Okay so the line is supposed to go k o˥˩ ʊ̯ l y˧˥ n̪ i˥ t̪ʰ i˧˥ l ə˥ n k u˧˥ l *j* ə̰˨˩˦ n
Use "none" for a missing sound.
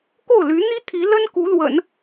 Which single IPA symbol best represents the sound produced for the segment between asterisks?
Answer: w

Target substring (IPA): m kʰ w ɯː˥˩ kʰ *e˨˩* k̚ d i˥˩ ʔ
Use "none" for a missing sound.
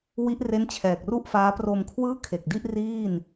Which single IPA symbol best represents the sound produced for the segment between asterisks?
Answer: e˨˩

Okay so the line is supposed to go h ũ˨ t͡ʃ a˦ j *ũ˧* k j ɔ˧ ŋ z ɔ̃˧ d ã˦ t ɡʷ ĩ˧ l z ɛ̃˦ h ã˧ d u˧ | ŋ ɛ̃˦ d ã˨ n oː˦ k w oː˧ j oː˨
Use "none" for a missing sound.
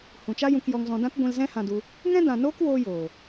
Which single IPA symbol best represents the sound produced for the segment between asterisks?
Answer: ũ˧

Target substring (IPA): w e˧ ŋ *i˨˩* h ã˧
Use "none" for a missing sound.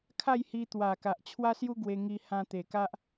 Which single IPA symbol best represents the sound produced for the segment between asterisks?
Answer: i˧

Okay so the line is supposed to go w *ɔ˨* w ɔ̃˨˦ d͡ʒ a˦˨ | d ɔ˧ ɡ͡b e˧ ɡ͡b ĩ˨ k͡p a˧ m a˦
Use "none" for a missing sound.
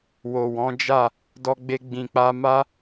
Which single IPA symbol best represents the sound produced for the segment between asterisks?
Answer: o˨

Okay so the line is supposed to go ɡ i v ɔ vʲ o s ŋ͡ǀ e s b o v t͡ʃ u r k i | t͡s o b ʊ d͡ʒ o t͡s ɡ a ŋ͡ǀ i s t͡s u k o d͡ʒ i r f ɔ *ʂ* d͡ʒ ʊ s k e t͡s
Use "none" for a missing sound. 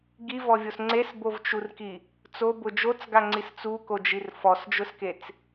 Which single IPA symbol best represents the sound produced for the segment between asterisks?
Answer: s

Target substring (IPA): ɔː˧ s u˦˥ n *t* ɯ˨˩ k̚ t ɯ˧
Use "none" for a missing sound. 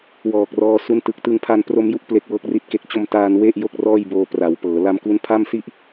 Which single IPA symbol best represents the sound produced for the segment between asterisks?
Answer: t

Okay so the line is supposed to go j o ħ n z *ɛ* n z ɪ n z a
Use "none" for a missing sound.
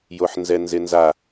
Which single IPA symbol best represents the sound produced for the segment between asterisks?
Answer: ɛ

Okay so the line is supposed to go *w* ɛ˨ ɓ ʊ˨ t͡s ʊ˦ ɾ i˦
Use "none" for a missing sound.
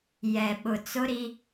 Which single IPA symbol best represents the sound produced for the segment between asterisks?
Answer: j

